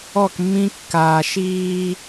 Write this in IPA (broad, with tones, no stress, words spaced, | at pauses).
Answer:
ɔ˦˨kmːĩ˦kːaː˨ ʃiː˦